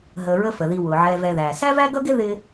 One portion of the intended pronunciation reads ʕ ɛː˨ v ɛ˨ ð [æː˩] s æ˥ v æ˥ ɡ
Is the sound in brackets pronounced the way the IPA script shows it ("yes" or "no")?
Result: yes